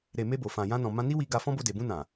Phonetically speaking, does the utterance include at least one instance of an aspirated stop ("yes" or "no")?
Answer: no